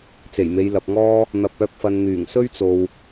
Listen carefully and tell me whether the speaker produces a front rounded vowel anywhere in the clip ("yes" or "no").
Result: yes